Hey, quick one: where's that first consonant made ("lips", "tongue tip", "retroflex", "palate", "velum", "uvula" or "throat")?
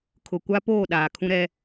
velum